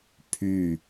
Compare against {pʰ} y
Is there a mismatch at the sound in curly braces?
no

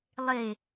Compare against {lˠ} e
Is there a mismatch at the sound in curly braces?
no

